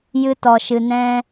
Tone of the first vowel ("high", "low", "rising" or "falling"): high